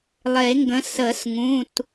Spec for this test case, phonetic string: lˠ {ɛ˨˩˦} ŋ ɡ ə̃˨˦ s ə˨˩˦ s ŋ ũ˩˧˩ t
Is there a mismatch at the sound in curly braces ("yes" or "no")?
yes